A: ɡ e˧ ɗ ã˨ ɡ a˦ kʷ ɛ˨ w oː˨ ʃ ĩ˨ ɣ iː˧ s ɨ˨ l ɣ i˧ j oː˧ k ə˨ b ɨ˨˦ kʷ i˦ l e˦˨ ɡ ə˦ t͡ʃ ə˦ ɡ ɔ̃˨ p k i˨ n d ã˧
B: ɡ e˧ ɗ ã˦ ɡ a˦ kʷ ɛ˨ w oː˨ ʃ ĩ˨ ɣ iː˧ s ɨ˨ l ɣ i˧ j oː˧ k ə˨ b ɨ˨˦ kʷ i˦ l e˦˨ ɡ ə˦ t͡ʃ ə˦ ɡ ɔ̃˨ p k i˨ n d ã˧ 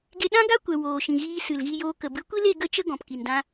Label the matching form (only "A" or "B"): B